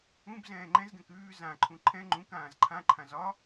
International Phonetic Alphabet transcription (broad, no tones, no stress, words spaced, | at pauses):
ũbzɛ̃ː ŋ͡ǃɛ̃zɡɛ̃k ʉː zãǃʰũ ǃʰɛ̃ ŋ͡ǃũk ãːzǃʰãǃʰã zɒ